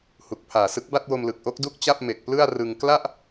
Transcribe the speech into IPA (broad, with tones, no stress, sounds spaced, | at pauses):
h u˨˩ k̚ pʰ aː˨˩ s ɯ˦˥ k̚ b a˥˩ t̚ w o˧ m l ɯ˨˩ k̚ ʔ o˦˥ k̚ d u˥˩ k̚ t͡ɕ a˥˩ p̚ m e˨˩ k̚ p l ɯ˥˩ a̯ r ɯ˧ ŋ k l a˥˩ ʔ